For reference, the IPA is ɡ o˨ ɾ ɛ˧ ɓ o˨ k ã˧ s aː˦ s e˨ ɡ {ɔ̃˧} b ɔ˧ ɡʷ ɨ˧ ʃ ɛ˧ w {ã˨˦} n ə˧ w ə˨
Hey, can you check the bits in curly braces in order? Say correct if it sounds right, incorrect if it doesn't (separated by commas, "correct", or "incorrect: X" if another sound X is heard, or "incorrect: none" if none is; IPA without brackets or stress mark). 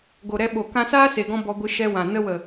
correct, incorrect: ã˨